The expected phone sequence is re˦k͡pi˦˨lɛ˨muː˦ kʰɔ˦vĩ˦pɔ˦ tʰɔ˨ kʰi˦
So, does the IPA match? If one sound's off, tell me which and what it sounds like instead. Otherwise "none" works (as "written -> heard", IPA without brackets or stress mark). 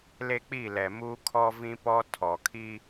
r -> l